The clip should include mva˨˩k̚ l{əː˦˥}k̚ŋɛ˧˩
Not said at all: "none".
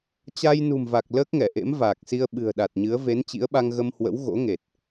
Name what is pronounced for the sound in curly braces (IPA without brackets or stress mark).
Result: əː˦˥